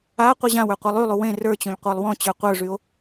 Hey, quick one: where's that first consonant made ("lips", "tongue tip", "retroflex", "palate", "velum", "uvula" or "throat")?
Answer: uvula